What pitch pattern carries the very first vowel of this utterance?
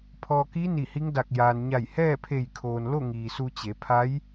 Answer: low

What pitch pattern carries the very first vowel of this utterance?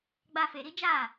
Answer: high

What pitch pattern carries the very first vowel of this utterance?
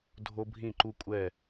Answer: high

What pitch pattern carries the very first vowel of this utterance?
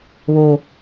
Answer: high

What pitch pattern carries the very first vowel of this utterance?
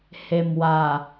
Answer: low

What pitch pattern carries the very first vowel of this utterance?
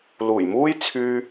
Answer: low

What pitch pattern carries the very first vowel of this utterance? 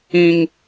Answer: high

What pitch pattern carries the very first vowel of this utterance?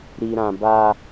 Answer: low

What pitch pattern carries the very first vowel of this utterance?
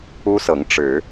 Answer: high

